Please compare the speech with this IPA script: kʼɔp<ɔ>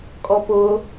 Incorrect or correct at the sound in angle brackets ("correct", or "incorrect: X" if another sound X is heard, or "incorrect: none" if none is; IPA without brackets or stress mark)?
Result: incorrect: ʊ